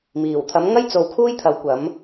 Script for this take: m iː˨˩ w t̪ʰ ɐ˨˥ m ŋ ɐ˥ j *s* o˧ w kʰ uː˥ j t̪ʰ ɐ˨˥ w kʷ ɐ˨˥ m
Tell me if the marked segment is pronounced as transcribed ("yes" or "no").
no